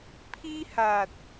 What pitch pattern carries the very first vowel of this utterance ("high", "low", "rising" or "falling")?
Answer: high